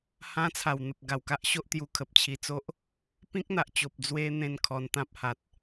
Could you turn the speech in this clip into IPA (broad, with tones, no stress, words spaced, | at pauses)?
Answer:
hã˦t͡sʰa˨˩wn̪ə˨p̚ ɡa˨˩wka˦ʔɕo˦ʔt̪ju˧ kʰə˨p̚t͡ɕʰi˧t͡so˦ʔ | pĩ˦k̚n̪a˨ʔt͡ɕo˨p̚ d͡zwe˧ n̪ẽ˥˧nkʰɔ˧n t̪ã˦p̚ha˨t̚